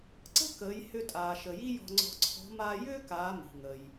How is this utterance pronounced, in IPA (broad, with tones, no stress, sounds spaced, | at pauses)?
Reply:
ǀ ə̤˥ k əː˩˧ j h ʏ˧ tʼ aː˩ ʃ ə˩ j i˥ j ɔ̤˧ ŋ͡ǀ ɔ̤˧ ǀʰ ɔ̤˧˥ m aː˧ j ʏː˥ k aː˩˧ m i̤˩ ŋ ə˩ j